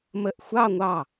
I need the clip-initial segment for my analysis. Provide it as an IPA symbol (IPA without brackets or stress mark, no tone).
m